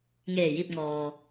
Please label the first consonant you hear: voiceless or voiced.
voiced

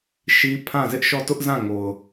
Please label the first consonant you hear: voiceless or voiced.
voiceless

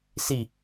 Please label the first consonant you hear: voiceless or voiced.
voiceless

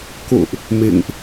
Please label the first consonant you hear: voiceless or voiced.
voiceless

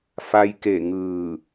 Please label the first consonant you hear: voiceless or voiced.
voiceless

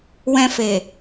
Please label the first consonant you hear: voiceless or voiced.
voiced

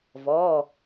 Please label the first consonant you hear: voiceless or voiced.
voiced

